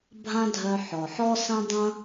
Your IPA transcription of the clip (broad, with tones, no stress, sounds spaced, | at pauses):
bʱ ã˦ dʱ œ˧ ħ ɔ˨ ħ ɔ˦ s ɐ̃˦ dˤ ɐ̃˦